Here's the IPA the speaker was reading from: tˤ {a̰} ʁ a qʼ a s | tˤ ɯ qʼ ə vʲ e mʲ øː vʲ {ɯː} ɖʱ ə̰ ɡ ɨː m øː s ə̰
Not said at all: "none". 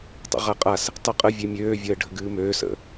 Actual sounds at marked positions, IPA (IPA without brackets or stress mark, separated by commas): ə̰, əː